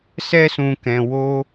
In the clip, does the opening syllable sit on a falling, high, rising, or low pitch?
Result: high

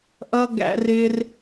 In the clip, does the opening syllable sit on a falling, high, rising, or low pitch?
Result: high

